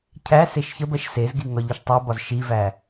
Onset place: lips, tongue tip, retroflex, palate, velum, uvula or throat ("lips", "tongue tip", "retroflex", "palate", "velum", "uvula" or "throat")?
palate